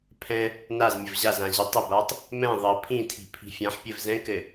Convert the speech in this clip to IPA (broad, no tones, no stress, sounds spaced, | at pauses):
pʰ ɛ̃ | n a z mʲ ə v ʑ a z ã ʑ ə tˤ ɘ b a tˤ | m ɛ̃ ðˤ ə pʰ ĩ tʰ i̤ pʰ i̤ fʲ ã ħ pʲ ɘ v z ɛ̃ k ɘ